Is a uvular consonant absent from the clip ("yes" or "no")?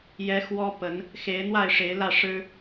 yes